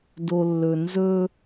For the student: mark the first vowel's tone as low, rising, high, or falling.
low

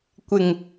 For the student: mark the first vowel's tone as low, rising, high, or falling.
low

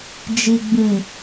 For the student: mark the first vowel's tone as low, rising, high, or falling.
low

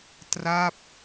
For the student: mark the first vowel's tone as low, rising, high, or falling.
falling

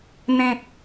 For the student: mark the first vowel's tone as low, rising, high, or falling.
high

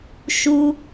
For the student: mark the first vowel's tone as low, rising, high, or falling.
high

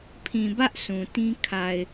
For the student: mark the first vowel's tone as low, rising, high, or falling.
low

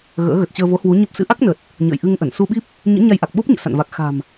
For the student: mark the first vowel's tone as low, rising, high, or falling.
rising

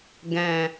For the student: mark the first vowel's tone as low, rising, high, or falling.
low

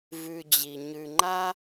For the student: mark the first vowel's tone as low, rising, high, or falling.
low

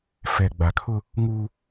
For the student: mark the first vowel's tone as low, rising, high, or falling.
low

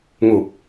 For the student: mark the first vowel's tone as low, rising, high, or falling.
low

